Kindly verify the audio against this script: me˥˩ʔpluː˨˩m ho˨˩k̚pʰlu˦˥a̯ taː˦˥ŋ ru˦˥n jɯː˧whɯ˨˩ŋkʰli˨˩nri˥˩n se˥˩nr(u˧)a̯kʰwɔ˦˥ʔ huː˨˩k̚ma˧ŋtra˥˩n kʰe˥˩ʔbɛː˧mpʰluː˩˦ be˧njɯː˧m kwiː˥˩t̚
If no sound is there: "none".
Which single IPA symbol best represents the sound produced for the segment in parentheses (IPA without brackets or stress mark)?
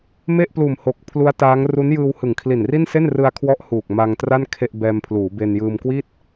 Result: ɯ˧